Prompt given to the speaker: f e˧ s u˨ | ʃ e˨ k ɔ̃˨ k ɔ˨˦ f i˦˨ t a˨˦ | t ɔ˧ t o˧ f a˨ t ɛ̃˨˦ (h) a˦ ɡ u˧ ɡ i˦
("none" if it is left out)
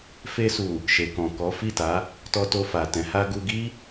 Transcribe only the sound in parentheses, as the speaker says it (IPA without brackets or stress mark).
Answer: h